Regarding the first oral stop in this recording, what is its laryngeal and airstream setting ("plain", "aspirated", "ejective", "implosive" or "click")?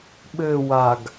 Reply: implosive